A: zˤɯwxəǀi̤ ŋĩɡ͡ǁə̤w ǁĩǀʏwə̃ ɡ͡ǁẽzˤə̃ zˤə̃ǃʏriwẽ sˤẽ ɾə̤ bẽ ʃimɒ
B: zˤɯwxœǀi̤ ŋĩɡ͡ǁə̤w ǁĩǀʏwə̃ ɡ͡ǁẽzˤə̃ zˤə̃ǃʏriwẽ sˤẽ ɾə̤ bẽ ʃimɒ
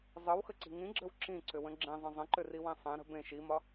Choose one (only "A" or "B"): A